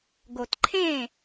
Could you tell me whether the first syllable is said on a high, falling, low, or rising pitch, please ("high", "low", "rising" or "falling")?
low